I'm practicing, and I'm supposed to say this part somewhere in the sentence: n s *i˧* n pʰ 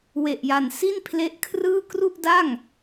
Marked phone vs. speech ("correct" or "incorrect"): incorrect